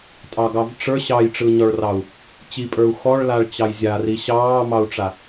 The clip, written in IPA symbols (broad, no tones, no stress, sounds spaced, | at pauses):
tʼ ɑ ɡ ɑ v ʈ͡ʂ ə˞ ɕ ɑ j ʈ͡ʂ ɯ ɲ ɔ ɭ r ɑ u̯ | t͡ɕ i pʼ ə˞ u̯ x ɔ ɭ l a ɭ t͡ɕ ɑ j zʲ a r i ɕ ɑː m ɑ u̯ ʈ͡ʂ a